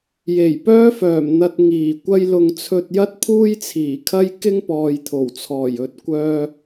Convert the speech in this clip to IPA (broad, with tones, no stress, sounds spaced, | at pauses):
j e˨˩ j p œː˥ f œː˨˩ m n̪ ɐ˧ t̚ ŋ iː˨˩ kʷ ɐ˥ j l ʊ˧ ŋ t͡sʰ ɵ˧ t̚ j ɐ˥ t̚ pʰ uː˥ j t͡sʰ iː˨˩ kʰ ɐ˥ j k ɪ˥ ŋ p ɔː˨ j t̪ʰ o˨˩ w t͡sʰ ɔː˨˩ j ɵ˨ t̚ kʷ œː˧